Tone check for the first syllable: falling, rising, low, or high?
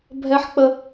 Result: high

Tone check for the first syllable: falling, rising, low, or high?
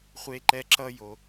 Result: high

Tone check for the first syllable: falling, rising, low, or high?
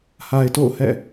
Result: low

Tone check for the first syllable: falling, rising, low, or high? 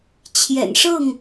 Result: low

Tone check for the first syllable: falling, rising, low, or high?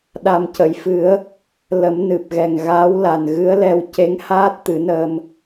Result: low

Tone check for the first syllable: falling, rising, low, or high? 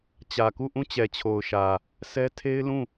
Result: low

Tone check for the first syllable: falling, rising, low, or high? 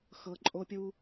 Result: low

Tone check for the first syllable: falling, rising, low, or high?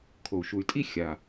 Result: low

